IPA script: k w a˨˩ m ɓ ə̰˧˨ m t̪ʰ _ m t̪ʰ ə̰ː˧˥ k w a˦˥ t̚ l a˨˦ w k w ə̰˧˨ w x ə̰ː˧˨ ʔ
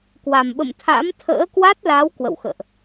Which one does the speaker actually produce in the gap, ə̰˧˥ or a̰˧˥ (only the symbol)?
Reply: a̰˧˥